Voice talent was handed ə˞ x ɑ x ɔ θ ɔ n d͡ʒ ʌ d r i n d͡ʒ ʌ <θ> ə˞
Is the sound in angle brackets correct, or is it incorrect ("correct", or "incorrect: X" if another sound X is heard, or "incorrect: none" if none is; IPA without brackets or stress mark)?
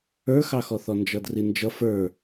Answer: incorrect: f